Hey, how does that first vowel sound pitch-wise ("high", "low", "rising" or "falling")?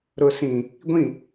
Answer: low